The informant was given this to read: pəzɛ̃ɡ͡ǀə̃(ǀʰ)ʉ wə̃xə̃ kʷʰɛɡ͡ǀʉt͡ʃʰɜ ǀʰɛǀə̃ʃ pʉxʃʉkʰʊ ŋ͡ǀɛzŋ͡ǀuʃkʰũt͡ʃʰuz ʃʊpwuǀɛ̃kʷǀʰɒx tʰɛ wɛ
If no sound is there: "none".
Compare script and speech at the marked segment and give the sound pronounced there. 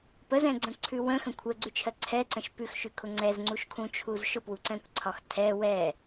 ǀʰ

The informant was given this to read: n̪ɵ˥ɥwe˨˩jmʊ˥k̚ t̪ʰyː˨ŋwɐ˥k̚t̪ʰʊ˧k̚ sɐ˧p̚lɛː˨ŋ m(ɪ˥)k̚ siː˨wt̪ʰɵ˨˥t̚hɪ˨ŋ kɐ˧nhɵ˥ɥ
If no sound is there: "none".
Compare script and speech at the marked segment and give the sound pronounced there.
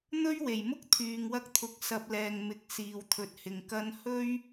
ɪ˨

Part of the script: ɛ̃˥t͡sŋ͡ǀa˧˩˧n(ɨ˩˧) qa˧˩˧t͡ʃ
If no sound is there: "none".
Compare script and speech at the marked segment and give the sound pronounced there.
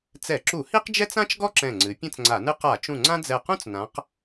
ɨ˥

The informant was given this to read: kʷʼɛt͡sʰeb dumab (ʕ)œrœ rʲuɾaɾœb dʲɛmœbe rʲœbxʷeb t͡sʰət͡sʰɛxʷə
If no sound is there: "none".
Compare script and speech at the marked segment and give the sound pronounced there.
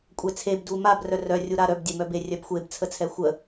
r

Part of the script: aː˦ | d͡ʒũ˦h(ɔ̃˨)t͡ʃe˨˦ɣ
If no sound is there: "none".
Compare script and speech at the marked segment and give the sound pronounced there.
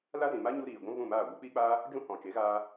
ɔ̃˨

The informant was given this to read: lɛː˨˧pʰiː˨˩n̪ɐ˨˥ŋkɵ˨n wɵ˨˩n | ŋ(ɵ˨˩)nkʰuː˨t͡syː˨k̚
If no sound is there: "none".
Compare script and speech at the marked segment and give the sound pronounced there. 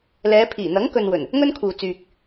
ɵ˥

